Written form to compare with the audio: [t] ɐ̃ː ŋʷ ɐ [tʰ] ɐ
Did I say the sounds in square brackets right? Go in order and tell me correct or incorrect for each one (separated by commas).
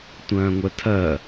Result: incorrect, correct